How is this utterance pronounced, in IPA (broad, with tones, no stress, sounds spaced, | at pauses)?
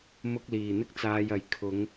m ʊ˧ k̚ l iː˨ n̪ ɪ˥ k̚ t͡s aː˧ j ɐ˨˥ j kʰ ʊ˨˧ ŋ